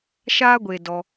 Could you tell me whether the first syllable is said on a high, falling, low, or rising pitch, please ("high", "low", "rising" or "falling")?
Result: high